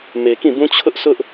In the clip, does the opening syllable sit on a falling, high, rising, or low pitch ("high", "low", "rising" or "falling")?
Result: low